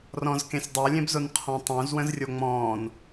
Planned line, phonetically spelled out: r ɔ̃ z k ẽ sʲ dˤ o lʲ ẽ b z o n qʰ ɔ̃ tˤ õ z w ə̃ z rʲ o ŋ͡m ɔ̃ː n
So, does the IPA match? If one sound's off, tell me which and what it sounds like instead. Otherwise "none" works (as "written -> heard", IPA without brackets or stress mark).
none